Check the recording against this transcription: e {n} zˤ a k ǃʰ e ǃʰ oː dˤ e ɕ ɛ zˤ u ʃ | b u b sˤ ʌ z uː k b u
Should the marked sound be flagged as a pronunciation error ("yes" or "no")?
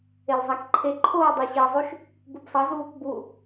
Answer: yes